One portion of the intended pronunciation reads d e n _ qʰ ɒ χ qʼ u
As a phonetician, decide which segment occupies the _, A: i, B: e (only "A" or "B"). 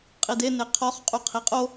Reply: B